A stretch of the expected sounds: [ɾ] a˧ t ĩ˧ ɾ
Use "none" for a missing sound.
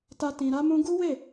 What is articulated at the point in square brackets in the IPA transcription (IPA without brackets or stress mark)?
t